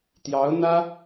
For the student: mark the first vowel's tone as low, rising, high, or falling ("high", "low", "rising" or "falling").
rising